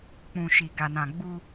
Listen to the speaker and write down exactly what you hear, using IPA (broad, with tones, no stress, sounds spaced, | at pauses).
k͡p ũ˨ ʃ i˨ ɡ a˨ n ã˨ ɡ͡b u˦